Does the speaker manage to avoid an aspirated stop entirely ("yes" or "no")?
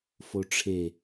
no